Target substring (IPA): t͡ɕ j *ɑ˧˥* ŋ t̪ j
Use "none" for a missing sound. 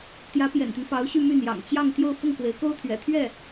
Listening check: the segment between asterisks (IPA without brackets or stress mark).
ɑ˥˧